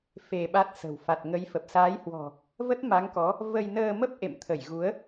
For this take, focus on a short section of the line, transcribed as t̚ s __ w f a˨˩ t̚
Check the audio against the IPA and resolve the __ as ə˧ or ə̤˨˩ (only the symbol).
ə̤˨˩